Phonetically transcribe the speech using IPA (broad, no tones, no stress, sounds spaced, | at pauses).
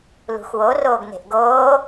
l ṳ x w o r oː ɡ n e̤ ʔ ɡ oː